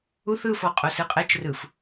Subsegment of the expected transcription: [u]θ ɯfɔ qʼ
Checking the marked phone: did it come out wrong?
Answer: no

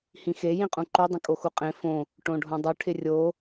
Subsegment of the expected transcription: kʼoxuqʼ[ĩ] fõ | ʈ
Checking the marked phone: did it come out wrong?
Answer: yes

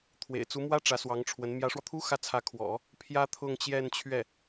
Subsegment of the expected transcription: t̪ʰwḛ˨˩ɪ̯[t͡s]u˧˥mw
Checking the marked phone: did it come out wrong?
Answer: no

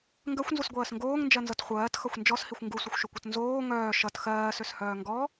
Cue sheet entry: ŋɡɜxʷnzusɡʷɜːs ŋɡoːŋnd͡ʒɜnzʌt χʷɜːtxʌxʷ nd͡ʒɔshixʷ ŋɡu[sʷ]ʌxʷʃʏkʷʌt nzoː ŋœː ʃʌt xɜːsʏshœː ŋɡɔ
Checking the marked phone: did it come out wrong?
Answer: no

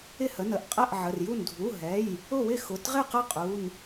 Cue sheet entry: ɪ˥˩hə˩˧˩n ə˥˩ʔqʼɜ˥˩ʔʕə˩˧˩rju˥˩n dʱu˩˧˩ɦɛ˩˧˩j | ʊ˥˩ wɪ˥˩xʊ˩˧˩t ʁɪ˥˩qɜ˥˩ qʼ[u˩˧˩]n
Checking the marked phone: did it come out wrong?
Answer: no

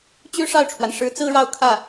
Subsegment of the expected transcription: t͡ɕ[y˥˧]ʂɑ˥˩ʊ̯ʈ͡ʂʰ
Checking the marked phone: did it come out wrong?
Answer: yes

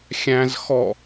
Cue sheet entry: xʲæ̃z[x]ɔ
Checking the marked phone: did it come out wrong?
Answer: no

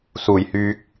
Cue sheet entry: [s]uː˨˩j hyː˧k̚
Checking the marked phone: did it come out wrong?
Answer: no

